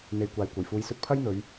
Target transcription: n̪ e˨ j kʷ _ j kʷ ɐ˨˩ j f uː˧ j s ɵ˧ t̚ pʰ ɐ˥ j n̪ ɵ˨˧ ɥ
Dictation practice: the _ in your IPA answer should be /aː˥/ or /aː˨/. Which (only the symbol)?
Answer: aː˨